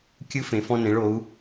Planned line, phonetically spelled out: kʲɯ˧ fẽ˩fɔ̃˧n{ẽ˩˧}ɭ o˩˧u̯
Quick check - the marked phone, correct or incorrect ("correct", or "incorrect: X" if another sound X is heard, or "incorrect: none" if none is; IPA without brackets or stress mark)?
correct